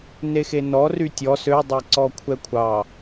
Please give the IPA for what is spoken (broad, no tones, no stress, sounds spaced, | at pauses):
n e x e n ɔ r y tʲ ɔ s ø dˤ ɛ ǀ ɔ kʷʰ ɛ kʷʰ ɑ